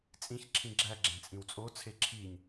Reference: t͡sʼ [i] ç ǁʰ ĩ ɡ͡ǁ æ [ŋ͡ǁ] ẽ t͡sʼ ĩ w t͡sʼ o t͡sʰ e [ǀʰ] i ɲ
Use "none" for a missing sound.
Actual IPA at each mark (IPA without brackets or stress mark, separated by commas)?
ĩ, ɡ͡ǁ, ǁʰ